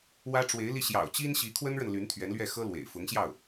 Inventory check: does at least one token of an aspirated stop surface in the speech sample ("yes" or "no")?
yes